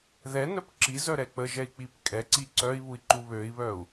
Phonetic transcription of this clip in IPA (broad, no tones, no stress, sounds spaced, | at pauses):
ð ɛ n œ p ǁ i z œ ɾ ɛ k͡p ə ʒ ɛ i̯ k͡p i p kʼ ɛ ǀ i ǀ œ i̯ β u i̯ ǃ u β ø i̯ β œ u̯